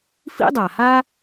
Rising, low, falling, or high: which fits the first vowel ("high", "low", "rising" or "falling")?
high